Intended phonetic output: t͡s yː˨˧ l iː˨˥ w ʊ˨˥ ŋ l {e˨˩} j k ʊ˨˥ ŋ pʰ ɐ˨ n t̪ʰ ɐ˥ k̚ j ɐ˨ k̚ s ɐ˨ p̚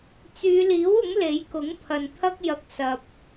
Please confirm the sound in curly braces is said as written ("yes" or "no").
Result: no